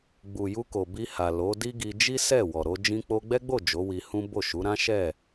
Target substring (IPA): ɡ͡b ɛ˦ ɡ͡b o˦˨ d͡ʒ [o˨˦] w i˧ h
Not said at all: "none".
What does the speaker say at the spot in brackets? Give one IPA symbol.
o˨˦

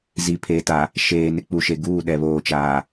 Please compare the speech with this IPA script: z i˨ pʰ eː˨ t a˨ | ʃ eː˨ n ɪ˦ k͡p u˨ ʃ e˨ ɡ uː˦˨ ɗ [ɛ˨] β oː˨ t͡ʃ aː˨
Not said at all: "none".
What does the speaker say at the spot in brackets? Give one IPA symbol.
ɛ˨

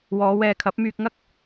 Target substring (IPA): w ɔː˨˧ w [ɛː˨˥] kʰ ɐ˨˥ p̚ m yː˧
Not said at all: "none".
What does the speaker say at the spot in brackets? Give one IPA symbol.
ɛː˧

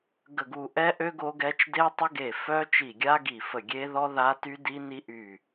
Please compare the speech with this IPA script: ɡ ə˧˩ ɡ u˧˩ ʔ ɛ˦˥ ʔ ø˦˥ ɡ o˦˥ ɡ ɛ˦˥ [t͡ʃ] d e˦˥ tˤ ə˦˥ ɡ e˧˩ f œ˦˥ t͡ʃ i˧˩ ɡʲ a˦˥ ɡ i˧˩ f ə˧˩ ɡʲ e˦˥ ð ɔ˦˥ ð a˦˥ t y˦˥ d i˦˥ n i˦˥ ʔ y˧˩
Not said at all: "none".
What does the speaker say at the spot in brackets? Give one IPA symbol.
t͡ʃ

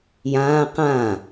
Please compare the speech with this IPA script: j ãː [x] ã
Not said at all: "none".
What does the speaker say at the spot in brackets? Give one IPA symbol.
q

